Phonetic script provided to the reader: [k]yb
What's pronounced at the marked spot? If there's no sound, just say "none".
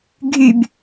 ɡʱ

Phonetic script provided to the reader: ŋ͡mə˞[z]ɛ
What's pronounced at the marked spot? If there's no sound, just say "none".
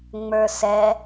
s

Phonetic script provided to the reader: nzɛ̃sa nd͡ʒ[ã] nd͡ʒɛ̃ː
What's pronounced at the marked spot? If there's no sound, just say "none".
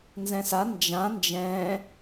ã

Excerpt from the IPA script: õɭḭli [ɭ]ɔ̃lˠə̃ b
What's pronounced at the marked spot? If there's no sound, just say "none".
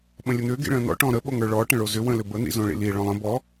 ɭ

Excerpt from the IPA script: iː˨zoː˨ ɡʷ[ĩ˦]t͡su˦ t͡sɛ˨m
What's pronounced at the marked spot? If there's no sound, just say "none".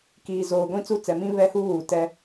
ĩ˦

